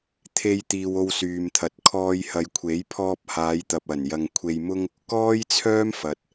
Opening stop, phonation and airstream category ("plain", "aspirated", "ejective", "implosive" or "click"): aspirated